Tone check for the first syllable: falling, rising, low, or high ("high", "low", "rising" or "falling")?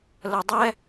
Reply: low